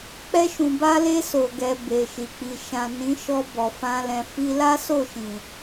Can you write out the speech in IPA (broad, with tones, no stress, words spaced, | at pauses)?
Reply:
k͡pɛ˧ʃũ˨ba˧le˧ so˨ɡɛ˨ be˨ʃi˨k͡pi˨ ʃã˨ nĩ˨˦ʃɔ˧bɔ˨ fã˧lɛ̃˨ fi˧la˦so˦˨ʃĩ˨